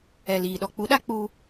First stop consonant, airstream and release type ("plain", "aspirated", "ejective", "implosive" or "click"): implosive